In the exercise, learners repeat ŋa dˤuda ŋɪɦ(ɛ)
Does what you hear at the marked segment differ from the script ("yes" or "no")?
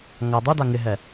no